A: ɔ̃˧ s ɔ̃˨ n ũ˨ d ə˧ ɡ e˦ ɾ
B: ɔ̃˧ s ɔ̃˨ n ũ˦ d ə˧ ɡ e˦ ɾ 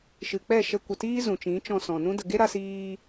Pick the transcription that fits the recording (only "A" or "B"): B